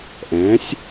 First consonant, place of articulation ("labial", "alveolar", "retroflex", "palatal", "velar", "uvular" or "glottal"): glottal